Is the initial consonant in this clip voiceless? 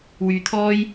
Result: no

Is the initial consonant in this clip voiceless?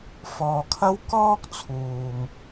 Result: yes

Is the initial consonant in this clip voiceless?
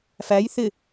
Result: yes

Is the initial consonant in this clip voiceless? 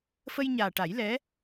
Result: yes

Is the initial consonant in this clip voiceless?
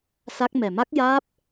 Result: yes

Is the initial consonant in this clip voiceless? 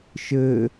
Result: yes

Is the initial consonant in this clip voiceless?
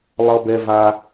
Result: no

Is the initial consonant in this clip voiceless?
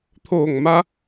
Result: yes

